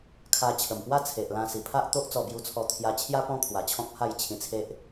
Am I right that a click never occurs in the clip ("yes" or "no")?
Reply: yes